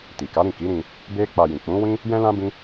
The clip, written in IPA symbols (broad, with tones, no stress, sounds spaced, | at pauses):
t i˨ k a˨˦ ɾ ĩ˦˨ k i˨˦ ɾ ĩ˧ | b e˦ k͡p a˧ j ĩ˨ k͡p ũ˨˦ w ĩ˦ | j ɛ̃˦ l ã˦ b ĩ˦